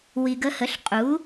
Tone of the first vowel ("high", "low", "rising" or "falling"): low